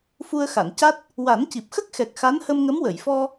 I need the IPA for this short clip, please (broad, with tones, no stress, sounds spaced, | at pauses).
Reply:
f u˧ ə̯ x a˨˩˨ n c a˦˥ t̚ | w a˨˩˦ n c i˨˩ p̚ x ə˦˥ k̚ x ɛ˨˩ k̚ x a˧˥ n h ə˧ m ŋ ə˧˥ m w ə˨˩˨ j f ɔ˧